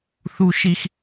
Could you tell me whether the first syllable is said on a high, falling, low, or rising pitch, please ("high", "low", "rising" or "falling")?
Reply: high